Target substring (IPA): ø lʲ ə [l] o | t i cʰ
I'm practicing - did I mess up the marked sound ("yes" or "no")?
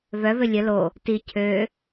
no